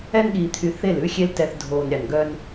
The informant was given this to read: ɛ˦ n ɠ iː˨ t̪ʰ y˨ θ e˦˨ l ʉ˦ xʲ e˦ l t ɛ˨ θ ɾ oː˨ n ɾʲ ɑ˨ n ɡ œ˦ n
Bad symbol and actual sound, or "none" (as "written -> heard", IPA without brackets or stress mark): ɾ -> dʱ